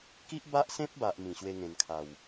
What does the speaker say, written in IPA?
k i˦ ʔ b a˦ ʔ s ẽ˦ p̚ b a˨ ʔ m ĩ˨˩ ɕ w e˧ ŋ ẽ˨˩ n kʰ a˨˩ w

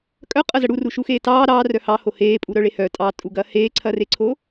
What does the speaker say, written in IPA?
kʼ œ qʼ ɐ z ɐ ɽ u r u ʃ u x eː t ɑː ɾ ɑː r œ h ɑ h o h eː pʼ u ɾ œ ɭ e h œ tʼ ɑ tʼ u ɡ ɐː h eː ǀʰ ɐ r e ǀʰ o

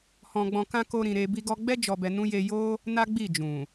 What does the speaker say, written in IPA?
h ɔ̃˧ ɡ͡b ɔ̃˧ k ã˦ k o˦ ɾ ĩ˧ ɾ e˦ b i˧ ɡ ɔ˧ ɡ͡b ɛ˦ d͡ʒ ɔ˧ b ɛ˧ n ũ˦ j e˧ j o˦ | n a˦ ɡ͡b i˦˨ d͡ʒ ũ˨

